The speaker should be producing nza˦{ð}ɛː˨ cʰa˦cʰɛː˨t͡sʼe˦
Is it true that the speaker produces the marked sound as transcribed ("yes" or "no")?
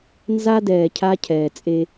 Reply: no